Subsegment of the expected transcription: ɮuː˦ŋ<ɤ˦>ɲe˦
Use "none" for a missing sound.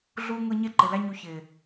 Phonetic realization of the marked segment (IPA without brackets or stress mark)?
ɤ˦